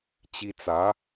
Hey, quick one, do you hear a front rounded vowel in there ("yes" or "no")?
no